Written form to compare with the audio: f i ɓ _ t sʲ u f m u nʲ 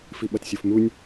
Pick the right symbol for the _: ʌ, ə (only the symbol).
ʌ